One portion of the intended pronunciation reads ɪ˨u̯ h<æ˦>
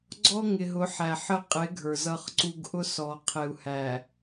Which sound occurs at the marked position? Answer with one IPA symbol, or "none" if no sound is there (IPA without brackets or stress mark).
æ˨